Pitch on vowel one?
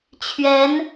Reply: rising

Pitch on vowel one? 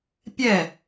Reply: falling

